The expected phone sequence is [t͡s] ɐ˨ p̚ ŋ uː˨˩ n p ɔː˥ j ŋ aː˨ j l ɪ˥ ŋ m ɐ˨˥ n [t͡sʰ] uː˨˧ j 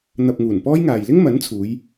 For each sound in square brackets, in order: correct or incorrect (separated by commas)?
incorrect, correct